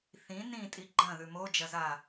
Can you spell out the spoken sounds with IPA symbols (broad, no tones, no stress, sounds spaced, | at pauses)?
θ ĩ n ĩ tʼ i ɡ͡ǃ ɐ̃ ð ʉ m o d͡ʒ ɐ z a